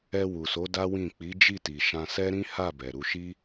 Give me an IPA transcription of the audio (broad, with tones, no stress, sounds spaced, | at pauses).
ɛ˧ w u˨ s o˨˦ d a˦ w ĩ˦˨ k͡p i˨˦ d͡ʒ i˦˨ t i˨ ʃ ã˧ s ɛ˦ ɾ ĩ˦ h a˦˨ b ɛ˨ ɾ u˧ ʃ i˦